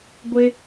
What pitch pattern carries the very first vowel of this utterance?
low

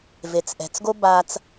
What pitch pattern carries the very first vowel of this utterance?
low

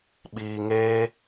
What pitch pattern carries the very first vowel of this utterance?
low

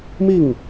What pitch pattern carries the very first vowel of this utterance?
falling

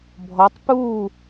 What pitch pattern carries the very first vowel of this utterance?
rising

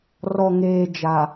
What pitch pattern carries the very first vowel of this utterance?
low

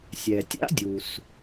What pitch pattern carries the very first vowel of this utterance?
low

